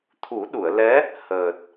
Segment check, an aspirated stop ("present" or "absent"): present